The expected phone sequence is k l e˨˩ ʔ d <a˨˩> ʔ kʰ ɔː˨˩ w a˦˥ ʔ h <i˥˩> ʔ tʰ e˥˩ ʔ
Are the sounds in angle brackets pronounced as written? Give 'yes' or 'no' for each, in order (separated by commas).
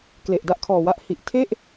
no, no